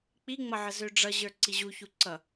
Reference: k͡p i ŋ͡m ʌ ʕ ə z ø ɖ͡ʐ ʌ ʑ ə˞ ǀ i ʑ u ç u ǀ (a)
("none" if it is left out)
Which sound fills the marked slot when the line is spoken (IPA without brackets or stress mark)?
ʌ